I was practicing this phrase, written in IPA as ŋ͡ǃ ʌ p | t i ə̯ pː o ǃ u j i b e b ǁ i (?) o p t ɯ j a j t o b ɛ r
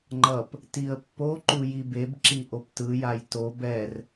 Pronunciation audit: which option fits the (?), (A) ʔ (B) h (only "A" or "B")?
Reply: A